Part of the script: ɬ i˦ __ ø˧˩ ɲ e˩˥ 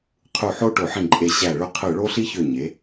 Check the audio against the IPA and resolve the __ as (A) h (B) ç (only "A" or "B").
B